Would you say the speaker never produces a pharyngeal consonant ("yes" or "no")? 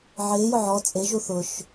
no